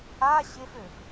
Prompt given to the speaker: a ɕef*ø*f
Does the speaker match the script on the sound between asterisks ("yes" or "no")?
yes